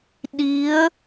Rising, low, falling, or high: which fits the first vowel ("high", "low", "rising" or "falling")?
rising